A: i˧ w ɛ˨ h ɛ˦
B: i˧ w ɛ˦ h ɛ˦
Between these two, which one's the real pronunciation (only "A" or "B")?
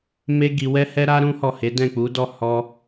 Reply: B